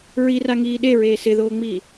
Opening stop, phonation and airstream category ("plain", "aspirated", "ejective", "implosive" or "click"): implosive